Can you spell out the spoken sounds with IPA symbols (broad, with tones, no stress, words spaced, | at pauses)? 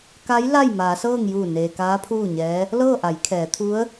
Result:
ka˧˥j la˥˨jmaː˩˧sɤː˥˨ŋ juː˧˩neː˩ kaː˧˥ pʰuː˥˨ɲɛː˧˥ | lɤː˥˨ʔa˩˧jkʰɛː˩˧ t̪ʰu˧˥ə̯